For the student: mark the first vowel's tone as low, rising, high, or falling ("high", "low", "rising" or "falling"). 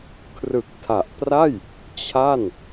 low